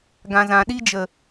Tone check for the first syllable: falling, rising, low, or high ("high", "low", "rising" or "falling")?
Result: low